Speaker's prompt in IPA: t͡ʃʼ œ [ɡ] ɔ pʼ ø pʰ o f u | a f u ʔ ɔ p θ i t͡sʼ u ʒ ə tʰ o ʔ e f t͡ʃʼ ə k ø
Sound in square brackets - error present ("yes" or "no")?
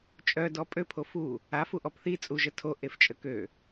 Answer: yes